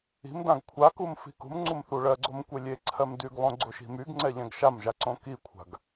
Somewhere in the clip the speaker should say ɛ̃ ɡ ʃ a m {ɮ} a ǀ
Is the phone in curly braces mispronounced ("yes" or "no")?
yes